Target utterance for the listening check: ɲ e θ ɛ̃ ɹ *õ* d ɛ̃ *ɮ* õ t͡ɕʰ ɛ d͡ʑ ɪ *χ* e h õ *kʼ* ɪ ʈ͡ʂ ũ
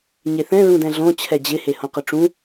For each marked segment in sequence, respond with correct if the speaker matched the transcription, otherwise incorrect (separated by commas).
incorrect, correct, incorrect, incorrect